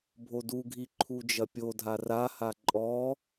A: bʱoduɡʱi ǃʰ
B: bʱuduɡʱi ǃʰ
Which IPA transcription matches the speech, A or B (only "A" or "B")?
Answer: A